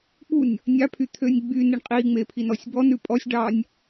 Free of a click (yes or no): yes